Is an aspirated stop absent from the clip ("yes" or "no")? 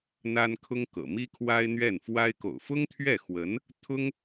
no